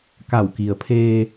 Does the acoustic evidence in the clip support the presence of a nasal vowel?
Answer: no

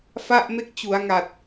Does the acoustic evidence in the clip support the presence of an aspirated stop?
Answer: no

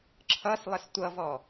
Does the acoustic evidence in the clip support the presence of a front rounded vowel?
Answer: no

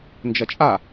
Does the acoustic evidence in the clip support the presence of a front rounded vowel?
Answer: no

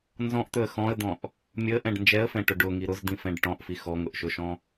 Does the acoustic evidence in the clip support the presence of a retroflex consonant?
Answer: yes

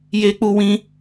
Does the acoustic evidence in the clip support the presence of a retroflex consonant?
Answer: no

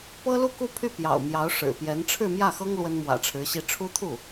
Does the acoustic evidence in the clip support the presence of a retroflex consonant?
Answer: yes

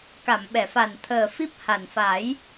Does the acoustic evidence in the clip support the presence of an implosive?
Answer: yes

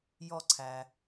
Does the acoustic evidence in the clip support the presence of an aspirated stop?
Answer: yes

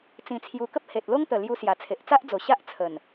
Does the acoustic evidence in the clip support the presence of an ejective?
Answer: no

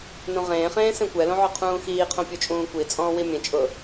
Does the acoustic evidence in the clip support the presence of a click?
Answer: no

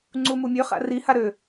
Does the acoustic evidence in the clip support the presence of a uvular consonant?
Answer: yes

